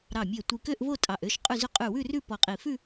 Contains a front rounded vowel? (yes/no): yes